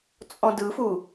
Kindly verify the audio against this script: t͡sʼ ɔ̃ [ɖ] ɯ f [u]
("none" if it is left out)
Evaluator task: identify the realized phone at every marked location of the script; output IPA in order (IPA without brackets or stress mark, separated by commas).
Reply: d, u